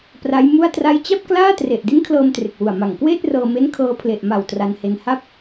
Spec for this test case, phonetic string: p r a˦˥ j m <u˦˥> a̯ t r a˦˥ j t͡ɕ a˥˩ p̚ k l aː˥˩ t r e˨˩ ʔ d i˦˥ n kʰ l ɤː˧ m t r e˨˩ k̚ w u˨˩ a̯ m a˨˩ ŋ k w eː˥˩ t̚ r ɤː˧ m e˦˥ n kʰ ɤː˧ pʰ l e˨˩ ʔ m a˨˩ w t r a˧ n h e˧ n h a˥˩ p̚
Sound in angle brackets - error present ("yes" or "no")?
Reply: yes